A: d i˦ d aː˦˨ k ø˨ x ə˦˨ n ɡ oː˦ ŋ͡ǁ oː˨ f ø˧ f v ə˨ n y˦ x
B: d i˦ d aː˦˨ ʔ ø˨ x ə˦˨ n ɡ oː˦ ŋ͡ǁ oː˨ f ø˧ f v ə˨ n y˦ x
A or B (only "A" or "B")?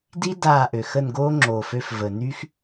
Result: B